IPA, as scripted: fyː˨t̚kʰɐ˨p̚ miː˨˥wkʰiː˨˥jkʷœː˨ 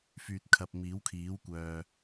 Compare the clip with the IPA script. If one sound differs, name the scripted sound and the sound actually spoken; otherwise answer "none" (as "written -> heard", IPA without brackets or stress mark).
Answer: j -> w